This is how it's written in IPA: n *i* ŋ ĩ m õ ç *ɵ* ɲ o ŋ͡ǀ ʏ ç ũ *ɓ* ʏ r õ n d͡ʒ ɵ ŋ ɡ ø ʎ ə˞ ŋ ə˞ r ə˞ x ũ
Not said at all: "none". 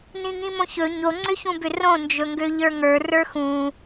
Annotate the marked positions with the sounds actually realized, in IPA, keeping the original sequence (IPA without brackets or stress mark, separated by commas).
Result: ĩ, ɵ, b